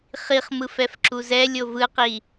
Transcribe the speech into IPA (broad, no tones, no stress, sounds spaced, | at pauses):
χ i χ m ɯ f ɛ f ǁ u z ɛ lʲ o v ɯ q i